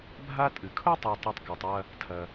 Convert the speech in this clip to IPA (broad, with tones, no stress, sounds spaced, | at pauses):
bʱ a˦ tʼ ɨ˩ kʰ ʊ˥ tˤ ɤ˨ tˤ ɛ˨ tˤ k a˩ tˤ w ɐ˨ | tʰ ɐ˩